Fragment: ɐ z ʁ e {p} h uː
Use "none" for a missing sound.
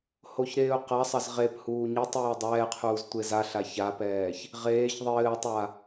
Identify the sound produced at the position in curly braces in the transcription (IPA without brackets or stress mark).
p